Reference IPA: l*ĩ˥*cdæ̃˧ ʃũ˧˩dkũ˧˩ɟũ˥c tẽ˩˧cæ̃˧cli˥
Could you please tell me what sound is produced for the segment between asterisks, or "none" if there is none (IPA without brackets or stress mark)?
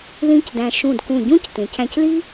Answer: ĩ˥